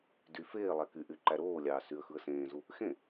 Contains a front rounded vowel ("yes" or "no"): yes